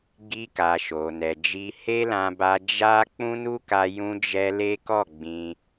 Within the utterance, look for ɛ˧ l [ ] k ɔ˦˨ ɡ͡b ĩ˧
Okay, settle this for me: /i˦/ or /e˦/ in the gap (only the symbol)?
e˦